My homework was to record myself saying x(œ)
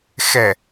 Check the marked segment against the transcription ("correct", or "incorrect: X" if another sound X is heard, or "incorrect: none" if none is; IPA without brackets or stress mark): incorrect: ɛ